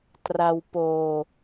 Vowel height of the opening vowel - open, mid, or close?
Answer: open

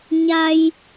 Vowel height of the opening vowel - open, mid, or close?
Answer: open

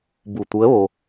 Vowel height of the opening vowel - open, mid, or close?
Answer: close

